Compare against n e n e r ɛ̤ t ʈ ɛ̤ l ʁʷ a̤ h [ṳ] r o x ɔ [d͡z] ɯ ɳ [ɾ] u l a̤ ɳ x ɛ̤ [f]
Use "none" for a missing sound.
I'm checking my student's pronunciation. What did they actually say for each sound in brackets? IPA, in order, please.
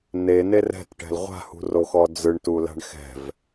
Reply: ṳ, d͡z, t, v

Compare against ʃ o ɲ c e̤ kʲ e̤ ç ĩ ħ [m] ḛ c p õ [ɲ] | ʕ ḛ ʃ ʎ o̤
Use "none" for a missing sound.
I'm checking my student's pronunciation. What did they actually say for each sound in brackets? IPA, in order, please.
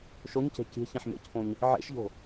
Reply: m, ɲ

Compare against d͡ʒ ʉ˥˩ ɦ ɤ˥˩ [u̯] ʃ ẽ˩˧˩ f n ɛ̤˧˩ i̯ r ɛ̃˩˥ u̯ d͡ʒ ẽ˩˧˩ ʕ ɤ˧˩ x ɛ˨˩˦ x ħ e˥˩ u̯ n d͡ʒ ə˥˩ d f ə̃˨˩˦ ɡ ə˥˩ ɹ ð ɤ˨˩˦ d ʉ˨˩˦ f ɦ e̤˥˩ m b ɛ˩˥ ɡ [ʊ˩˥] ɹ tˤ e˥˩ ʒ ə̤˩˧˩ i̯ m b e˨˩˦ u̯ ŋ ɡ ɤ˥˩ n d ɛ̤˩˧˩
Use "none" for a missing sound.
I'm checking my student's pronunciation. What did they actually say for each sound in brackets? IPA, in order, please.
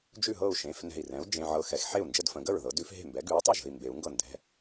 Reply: u̯, ʉ˩˥

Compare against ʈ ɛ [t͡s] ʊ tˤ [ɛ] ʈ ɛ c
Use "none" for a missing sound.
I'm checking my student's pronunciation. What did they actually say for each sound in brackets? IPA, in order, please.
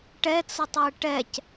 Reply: t͡s, ɛ

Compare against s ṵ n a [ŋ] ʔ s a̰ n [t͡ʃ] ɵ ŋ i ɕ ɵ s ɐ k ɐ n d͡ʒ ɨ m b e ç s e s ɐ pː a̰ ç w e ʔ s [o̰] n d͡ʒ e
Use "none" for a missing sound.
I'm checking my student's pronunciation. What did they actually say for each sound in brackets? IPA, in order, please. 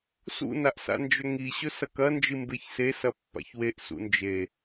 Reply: none, d͡ʒ, ṵ

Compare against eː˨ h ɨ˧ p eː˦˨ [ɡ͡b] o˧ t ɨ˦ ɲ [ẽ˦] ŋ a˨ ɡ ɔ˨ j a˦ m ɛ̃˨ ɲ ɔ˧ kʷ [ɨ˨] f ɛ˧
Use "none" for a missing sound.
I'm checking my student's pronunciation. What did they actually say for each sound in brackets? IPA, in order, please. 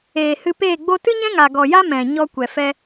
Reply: ɡ͡b, ɛ̃˦, ɛ˨

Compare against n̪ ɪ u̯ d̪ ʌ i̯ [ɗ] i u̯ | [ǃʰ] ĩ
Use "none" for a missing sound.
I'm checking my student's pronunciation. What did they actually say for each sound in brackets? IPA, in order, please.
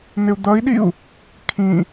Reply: ɗ, kʰ

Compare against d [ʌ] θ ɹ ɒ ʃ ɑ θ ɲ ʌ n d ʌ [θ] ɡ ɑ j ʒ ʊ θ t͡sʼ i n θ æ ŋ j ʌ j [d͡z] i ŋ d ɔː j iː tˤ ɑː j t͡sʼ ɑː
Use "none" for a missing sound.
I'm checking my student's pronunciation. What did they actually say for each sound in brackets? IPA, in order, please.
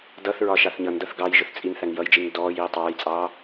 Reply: ʌ, θ, d͡ʒ

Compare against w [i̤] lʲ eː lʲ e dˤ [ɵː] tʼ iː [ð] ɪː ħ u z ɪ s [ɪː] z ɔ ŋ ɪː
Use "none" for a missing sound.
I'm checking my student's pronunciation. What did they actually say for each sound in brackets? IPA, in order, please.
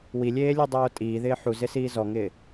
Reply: i, oː, ð, iː

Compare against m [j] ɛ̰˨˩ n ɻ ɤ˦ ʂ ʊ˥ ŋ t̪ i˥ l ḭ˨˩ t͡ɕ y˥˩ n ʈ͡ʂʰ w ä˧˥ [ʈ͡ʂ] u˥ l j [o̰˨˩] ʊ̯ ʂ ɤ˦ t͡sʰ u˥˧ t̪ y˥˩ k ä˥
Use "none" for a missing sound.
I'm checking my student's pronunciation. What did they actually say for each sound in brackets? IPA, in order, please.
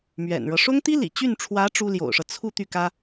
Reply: ɥ, ʈ͡ʂ, o̰˨˩

